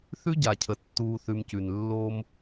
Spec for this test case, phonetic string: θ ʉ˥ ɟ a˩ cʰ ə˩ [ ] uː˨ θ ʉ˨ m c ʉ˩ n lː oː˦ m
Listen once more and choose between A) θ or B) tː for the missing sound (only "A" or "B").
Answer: B